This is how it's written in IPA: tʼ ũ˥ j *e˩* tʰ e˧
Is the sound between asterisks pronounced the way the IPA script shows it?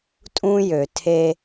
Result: no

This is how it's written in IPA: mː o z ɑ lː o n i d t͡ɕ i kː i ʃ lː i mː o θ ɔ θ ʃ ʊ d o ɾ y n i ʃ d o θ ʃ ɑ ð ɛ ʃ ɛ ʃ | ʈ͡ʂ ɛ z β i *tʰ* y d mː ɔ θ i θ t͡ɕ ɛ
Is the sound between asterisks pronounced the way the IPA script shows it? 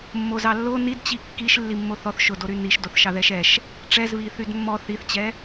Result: no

